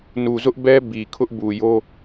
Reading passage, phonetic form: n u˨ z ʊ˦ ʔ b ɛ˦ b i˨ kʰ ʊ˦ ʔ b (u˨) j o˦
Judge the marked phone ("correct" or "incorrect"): correct